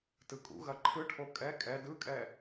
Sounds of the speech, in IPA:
t ɯ kʼ ṵ ɣ ɐ ǃʰ ɯ ʈʰ o kʼ ɛ kʼ ɛ d ɯ kʼ ɛ

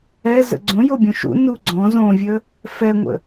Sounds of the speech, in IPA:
ɛ z ə̰ ɡ͡ǀ õ j o bʲ õ ʃ ṵ n u ɡ͡ǀ ɔ̃ z õ vʲ ə | f ɛ ŋʷ ə̰

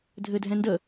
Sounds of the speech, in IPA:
dʱ ɘ dʱ ɛ̃ n d ə

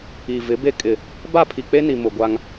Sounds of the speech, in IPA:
i˨ v ɪ˨˦ b e˦ kʼ ɪ˨ | b a˦˨ pʰ i˨ k͡p e˦ n i˨ m ʊ˨ ɡʷ a˦ ŋ

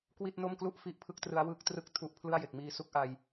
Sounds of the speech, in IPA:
k w i˥˩ t̚ n o˥˩ m k l u˥˩ ʔ f i˥˩ ʔ pʰ ɯ˥˩ k̚ t r ɯ˦˥ a̯ w ɯ˦˥ k̚ t r ɯ˥˩ k̚ tʰ u˦˥ ʔ pʰ l ɯ˥˩ a̯ j e˨˩ k̚ m iː˧ s u˦˥ k̚ ʔ a˧ j

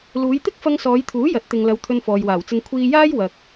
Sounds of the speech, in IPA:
l uː˨˧ j t̪ ɪ˥ k̚ f ɐ˧ ŋ s ɔː˨˧ j t̪ʰ uː˨˥ j ɐ˨˥ t̚ t̪ ɪ˨ ŋ l ɐ˨˧ w t̪ʰ ɵ˧ n f ɔː˨ j w aː˨˩ w t͡s ɪ˧ ŋ kʷʰ iː˧ j aː˥ j w ɐ˨ k̚

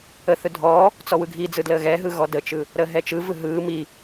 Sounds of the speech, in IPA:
ə θ ɯ dʱ ɔː | t͡s ɔ w ɯ ɡʱ i d͡z ɯ d l əː ɣ ɛ ɦ ɯ ɣ ɔ d ə t͡ʃ ɯ | ɾ əː ɦ ɛ t͡ʃ ɯ v ɯ ɦ ɯː m i

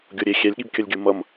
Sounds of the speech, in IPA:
ɡʲ o ɾʲ e xʲ ɛ lʲ ɠ i b kʲ ʌ lʲ ɡʲ u m ʌ m

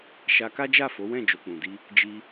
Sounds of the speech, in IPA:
ʃ a˧ k a˦ d͡ʒ a˦˨ f o˨˦ w ɛ̃˦˨ d͡ʒ o˨ k͡p ũ˨ d i˧ | d͡ʒ i˧

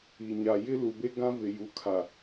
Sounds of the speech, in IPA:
i˨ ɲ a˨ j ɪ˦ l u˨ b e˦ ɡ ã˦ v ɪ˨ j u˨ kʰ a˨

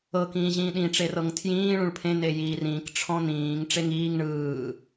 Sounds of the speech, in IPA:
ɤ k ĩː ʑ ĩː ɗ ĩ ʈ͡ʂ e r ɤ ŋ tʰ j ĩː ɭ ũ ɭ pʰ ẽ n e j iː r ĩː k ʈ͡ʂʰ ɔ̃ n ĩː ŋ ʈ͡ʂ e ŋ iː ŋ ɳ ɯː

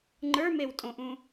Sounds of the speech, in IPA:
ŋ͡ǃ ə˞ m e w tʼ õ ʔ ũ

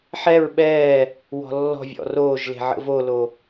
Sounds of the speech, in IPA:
ħ ɛ ɹ ɓ ɛː | w ɔ̤ lː ɔ̤ vʲ ɔ̰ r oː ʒ l e̤ ʕ ə̰ v o l o

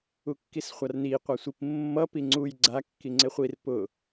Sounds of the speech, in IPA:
u kː i s χʷ a r n i qʷ a sʷ i p mː ʌ p i ŋ͡ǀ u j ɡ͡ǀ a kː i ŋ͡ǀ ɪ χʷ i r p ʊ

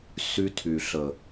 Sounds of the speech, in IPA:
s y˧ tʰ y˨ ɬ ə˨

